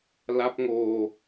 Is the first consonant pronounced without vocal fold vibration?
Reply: no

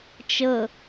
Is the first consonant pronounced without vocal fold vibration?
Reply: yes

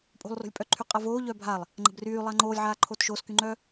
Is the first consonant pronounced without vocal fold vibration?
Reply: yes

